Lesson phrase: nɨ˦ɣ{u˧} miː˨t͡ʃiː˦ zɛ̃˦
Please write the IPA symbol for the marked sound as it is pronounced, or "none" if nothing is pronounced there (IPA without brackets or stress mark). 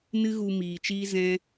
u˧